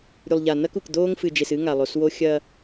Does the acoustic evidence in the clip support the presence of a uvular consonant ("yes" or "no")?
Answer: no